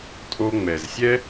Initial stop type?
ejective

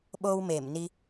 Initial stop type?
implosive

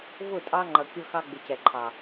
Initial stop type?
ejective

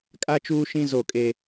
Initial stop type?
ejective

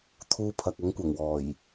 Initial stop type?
aspirated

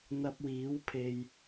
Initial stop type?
plain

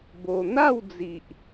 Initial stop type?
plain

